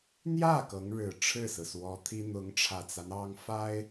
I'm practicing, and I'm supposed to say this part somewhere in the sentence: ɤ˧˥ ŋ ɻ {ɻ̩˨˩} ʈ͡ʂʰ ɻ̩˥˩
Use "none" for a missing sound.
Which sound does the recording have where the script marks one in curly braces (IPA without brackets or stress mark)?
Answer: ɻ̩˨˩